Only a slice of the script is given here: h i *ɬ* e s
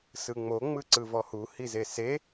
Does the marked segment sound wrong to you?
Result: yes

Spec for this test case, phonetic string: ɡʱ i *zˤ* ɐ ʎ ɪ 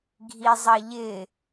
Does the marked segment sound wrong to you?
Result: no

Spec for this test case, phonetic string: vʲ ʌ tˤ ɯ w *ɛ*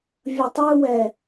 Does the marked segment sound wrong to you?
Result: no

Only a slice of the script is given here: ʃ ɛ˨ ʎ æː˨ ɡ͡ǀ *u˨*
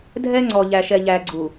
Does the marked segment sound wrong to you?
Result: no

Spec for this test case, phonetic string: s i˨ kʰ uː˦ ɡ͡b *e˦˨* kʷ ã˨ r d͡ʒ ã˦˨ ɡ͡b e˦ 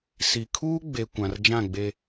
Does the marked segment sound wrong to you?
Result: yes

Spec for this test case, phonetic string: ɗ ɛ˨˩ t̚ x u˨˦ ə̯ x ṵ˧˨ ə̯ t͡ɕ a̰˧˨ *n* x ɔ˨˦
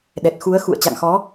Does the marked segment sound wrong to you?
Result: yes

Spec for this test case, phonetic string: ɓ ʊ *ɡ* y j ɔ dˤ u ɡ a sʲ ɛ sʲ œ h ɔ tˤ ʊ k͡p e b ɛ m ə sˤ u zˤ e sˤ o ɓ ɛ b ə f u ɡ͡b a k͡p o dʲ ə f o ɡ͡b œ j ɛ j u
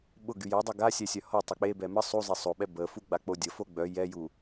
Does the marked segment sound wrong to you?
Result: no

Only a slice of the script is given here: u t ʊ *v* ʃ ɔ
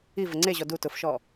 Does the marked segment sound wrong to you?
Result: yes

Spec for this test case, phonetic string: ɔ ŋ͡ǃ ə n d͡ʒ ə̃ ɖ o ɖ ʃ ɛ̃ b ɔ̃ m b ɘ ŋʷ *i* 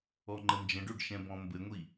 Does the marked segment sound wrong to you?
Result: no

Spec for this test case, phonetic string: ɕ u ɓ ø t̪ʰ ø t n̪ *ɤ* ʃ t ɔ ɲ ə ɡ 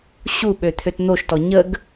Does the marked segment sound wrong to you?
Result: yes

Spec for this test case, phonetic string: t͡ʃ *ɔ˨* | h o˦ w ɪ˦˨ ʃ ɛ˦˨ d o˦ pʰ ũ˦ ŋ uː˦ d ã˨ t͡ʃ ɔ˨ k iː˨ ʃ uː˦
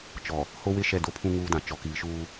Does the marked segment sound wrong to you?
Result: no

